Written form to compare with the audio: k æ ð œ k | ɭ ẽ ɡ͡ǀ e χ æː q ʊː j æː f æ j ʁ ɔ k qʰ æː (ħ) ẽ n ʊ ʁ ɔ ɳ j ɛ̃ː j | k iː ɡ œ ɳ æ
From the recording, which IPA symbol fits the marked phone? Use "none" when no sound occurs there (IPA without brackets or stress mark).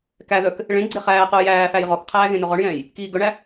ɣ